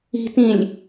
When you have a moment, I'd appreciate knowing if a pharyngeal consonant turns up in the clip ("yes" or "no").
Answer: no